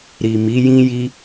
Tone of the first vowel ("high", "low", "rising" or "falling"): low